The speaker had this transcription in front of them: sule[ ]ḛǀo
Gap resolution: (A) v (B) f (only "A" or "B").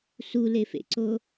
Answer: B